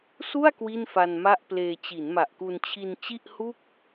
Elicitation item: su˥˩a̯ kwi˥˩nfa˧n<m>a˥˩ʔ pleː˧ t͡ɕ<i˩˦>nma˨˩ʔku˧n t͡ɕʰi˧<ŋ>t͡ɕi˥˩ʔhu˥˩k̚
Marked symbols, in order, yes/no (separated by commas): yes, yes, no